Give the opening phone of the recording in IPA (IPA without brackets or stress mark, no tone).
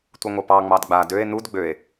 tʷ